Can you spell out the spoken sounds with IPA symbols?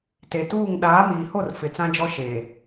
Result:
t e˨ t uː˦˨ ŋ ɗ aː˨˦ m iː˨ h o˦˨ r f ɪ˨ t͡s ã˦ d͡ʒ ɔ˦ ʃ eː˨

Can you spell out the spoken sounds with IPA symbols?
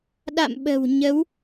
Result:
ɗ a̰˧˨ m ɓ ə̤˨˩ w ɲ ə˨˦ w

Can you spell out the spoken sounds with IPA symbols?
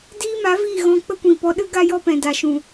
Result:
d iː˦ m a˨˦ v iː˦˨ ɣ ɔ̃˧ k͡p ə˦ kʷ ĩ˨ p ɔ˧ ɗ ɨ˦ ɡ a˦ j ɔ˦ p ɛ̃˨ d a˨ ʃ ũ˨

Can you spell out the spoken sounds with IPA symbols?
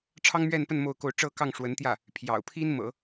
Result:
ʈ͡ʂʰ ɑ˥ ŋ m ɥ ɛ˥˧ n p ə˥˧ n m o˥˧ ʊ̯ k o˥˧ ʊ̯ ʈ͡ʂ ɤ˥˧ k ɑ˥˩ ŋ ʂ w ə˧˥ n t̪ j ä˥˩ | pʰ j ɑ̰˨˩ ʊ̯ pʰ i˥ n m ɤ̰˨˩˦

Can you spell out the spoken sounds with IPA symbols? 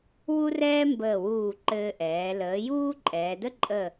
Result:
w u˥ r ɛː˥ m b əː˧˩ w uː˧˩ ǃ ɘː˧ ʔ ɛː˩˧ l əː˩˧ j uː˥ ǃʼ ɛː˩˧ d ə˥ ǃʼ ə˧˩

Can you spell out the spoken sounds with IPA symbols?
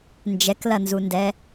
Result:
n d͡ʒ ɛ k l ɐ n z u n d ɛ

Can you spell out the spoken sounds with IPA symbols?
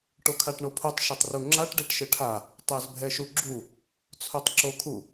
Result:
ʈ o kʰ a ʈ ɳ o pʰ u tˤ ʃ ɘ tˤ r u ŋ͡ǁ a ʈ ɖ e ʈ ʃ ɘ ʈʰ a | tˤ ɛ z bʱ ɛ ʃ u ɡ͡ǁ u | t͡sʰ o tˤ ǁ o kʰ u

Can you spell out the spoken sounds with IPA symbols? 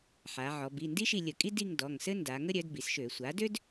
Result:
ħ a˩˧ ʕ ɔ˩˧ b i˩˧˩ n d i˥ ʃ i˦˨ lʲ ə˧˩˧ kʼ i˥ d i˦˨ ŋ d ɔ˩˧˩ ŋ s ɘ˥ n d a˩˧ ŋ ə˥ ɾʲ œ˩˥ d b i˩˧ s ʃ ø˧˩˧ sʷ a˩˥ d ø˥ d

